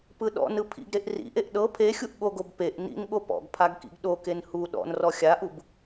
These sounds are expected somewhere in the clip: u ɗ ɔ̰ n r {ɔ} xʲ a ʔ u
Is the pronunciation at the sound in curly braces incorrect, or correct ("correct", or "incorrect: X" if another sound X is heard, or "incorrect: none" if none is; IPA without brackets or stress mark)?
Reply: correct